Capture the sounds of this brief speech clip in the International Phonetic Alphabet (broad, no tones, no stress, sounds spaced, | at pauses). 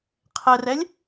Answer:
qʰ ɛ r ɛ lʲ